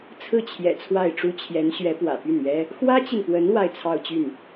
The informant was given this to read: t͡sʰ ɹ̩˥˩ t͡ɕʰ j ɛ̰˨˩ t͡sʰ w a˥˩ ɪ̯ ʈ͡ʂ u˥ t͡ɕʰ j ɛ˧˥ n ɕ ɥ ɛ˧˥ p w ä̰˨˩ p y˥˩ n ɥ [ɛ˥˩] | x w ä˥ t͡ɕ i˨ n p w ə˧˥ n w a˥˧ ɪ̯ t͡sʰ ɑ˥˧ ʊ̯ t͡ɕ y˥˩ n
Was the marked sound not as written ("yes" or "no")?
yes